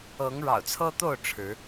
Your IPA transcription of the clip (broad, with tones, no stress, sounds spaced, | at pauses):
ɤ˨˦ ŋ ɻ ɑ̰˨˩ ʊ̯ t͡sʰ ɤ˦ t̪ o˥˨ ʊ̯ ʈ͡ʂʰ ɻ̩˨˦